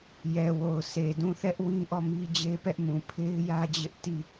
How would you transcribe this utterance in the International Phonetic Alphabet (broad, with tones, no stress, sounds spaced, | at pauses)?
j ɛ˨ w o˨ ʊ̯ sʰ e˨ d ũ˦˨ θ ɛ˦ ʔ w ĩ˦ ʔ ɔ˦˨ m i˦ d͡ʑ e˦ p ɛ˦ ʔ m ũ˨ pʰ e˦ ɪ̯ j ä˦ d͡ʑ ɪ˦ ʔ t i˦˨